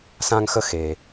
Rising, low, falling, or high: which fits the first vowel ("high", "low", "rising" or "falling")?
high